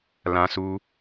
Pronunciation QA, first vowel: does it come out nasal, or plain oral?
nasal